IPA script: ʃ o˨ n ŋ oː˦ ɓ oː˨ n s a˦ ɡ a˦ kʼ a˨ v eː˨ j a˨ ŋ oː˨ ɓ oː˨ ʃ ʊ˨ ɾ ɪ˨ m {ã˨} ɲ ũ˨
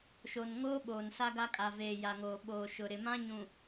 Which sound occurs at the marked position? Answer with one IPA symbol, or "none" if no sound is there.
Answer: ã˦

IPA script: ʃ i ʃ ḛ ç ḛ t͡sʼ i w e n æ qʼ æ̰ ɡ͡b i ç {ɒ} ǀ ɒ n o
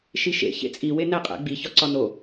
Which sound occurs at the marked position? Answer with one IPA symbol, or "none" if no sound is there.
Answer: ɒ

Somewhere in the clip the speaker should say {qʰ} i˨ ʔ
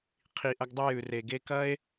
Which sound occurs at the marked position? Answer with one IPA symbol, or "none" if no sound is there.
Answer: qʰ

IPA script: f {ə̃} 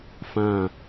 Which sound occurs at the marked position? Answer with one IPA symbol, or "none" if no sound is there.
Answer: ã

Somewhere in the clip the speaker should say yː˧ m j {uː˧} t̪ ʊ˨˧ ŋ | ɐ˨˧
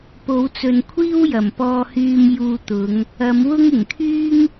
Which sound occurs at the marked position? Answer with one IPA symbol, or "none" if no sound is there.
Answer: uː˧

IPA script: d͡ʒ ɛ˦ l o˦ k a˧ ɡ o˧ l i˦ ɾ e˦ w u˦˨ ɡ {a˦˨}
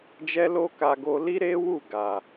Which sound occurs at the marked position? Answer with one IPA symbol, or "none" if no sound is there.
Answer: a˨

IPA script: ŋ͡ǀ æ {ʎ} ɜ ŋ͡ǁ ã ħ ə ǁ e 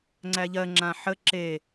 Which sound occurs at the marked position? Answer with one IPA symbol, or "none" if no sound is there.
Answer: ʎ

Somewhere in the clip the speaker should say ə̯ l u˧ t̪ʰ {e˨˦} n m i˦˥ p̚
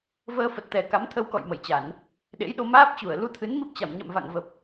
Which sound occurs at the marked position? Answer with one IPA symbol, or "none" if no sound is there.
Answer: ɨ˨˦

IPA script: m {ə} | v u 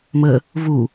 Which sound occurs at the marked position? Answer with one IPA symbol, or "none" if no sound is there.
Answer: ə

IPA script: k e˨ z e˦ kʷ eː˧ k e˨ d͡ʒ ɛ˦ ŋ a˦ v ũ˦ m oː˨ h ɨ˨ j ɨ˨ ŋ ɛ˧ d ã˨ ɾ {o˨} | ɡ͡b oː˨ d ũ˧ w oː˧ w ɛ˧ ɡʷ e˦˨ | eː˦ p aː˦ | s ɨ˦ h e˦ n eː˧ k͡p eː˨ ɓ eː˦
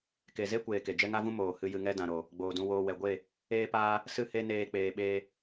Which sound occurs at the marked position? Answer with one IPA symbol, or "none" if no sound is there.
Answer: o˨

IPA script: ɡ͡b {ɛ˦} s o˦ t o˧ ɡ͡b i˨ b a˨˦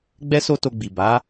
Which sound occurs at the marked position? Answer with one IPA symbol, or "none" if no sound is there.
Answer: ɛ˦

